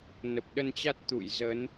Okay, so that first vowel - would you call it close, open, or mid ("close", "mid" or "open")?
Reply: mid